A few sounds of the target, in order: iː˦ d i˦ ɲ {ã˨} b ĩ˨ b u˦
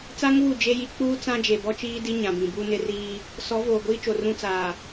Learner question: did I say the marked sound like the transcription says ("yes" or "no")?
yes